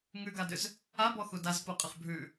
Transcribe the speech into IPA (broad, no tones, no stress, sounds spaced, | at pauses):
ŋ ʉ ɡ a d ʏ z | a b ɔ x u d a z p u qʼ ə χ bʱ ʉ